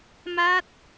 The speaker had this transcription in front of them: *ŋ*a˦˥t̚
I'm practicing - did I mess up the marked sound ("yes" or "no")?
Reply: yes